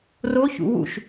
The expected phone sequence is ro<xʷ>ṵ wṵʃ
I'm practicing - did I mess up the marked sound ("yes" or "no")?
yes